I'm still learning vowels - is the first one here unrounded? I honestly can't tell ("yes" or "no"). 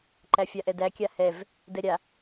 yes